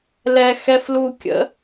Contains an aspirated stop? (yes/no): no